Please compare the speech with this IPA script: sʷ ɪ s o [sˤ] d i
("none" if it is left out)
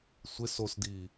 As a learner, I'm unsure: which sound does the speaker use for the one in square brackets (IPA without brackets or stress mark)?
s